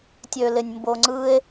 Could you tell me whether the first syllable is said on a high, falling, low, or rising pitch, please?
low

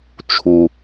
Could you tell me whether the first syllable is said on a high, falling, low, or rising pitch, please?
low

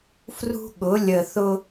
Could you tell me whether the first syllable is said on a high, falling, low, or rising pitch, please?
high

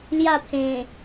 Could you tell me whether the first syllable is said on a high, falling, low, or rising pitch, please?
falling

